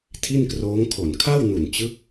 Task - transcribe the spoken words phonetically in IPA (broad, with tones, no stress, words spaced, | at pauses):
tʰi˥˩nkroː˦˥ŋkʰo˨˩n kʰa˥˩wnu˨˩nt͡ɕɯ˦˥k̚